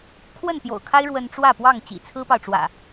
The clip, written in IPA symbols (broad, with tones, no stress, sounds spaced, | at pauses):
kʰ w ə˥˨ n p j o̰˨˩ ʊ̯ kʰ a˦ ɪ̯ ɻ w ə˦ n ʈ͡ʂ w ä˥˨ p w ɑ˥˨ ŋ t͡ɕ ḭ˨˩ t͡sʰ ɹ̩˦ p ɑ˨ ʊ̯ ʈ͡ʂ w ä̰˨˩